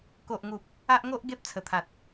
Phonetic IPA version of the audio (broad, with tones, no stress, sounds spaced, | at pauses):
k o˨ ʔ ŋ u˨ p̚ | a˦ ʔ ŋ o˦ ʔ ɡ e˦ p̚ t͡sʰ ə˨˩ t̪ʰ a˨ t̚